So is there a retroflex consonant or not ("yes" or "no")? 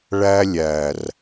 yes